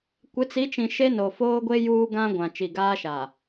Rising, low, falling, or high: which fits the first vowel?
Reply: rising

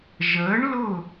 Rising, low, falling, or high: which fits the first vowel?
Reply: rising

